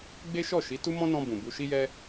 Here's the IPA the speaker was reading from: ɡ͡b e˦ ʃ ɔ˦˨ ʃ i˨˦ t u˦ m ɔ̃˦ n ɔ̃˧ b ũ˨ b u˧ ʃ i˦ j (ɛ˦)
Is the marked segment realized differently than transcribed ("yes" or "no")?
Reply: no